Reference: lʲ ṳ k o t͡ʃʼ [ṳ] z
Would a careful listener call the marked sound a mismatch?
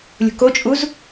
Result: yes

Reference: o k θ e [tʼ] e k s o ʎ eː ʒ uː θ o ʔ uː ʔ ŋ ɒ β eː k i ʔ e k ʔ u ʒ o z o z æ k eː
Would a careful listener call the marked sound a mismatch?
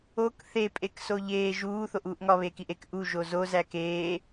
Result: yes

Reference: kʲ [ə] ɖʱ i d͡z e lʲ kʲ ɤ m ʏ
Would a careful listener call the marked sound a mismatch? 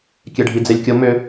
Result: yes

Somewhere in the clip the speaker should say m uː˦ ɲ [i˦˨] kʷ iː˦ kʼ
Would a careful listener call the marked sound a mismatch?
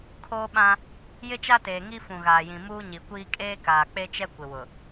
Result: yes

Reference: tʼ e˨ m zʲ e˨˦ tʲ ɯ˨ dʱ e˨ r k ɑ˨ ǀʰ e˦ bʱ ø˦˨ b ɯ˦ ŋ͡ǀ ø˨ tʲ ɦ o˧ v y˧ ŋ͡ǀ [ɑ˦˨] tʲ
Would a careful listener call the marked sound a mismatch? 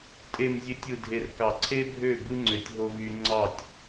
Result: no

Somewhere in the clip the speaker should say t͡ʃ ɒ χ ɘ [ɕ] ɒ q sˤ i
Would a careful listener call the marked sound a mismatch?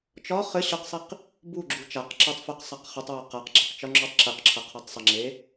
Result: no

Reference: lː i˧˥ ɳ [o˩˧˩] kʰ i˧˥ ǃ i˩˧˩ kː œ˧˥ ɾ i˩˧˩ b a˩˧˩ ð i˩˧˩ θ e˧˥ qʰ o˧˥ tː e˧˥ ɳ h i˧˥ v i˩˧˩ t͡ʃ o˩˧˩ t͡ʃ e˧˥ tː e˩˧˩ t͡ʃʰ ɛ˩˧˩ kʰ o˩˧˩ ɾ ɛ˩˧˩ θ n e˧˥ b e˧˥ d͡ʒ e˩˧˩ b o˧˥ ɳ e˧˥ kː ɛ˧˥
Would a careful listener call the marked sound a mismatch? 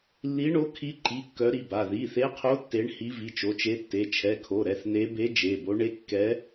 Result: yes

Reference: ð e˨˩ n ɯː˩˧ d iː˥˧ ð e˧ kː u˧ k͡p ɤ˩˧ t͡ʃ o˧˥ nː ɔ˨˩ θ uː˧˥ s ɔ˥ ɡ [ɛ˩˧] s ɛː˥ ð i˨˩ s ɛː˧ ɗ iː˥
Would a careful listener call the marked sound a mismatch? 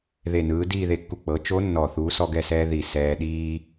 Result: yes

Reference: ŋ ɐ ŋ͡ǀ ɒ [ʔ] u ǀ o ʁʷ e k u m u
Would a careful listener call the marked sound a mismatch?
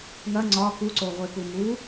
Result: yes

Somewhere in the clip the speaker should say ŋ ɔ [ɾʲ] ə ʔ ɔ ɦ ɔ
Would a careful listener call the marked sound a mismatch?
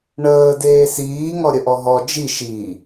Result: no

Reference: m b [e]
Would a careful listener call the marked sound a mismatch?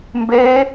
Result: no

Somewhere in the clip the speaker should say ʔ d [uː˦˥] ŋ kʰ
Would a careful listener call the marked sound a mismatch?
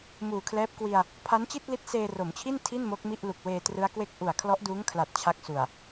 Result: no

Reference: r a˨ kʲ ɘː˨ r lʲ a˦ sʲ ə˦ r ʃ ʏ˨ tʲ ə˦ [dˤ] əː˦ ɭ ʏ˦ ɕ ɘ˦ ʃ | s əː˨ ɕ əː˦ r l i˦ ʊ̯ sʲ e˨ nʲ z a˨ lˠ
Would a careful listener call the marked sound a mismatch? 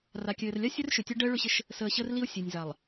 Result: yes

